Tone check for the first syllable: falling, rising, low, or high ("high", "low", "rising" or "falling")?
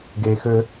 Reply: low